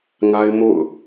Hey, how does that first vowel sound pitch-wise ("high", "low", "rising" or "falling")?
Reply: high